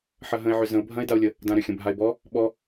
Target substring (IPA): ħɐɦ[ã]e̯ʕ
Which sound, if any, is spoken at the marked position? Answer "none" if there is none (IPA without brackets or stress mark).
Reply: ə̃